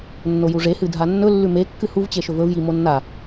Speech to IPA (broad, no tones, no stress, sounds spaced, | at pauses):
nː o j u ʐ e h ɨ dʱ a nː ɵ lː ʉ m e kː ɨ h u v t͡ɕ e ʃ ɵ v ɵ v j i m o nː a